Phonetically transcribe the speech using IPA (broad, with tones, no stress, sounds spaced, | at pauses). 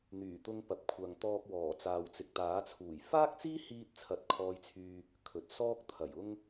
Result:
n̪ yː˨˩ t̪ ʊ˧ ŋ p ɐ˨ p̚ kʷʰ ɐ˨ ŋ t̪ ɔː˧ k̚ w ɔː˨˩ t͡s aː˨ w t͡s ɪ˨ k̚ t̪ aː˨˥ t͡sʰ uː˨˩ j f aː˥ k̚ t͡s iː˥ h iː˧ t̚ t͡sʰ ɐ˧ t̚ kʰ ɔː˧ j t͡sʰ yː˧ | kʰ ɵ˨ t̚ s ɔː˥ k̚ t̪ʰ ɐ˨˩ j ʊ˥ ŋ